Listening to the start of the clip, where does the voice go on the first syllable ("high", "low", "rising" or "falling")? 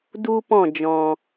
high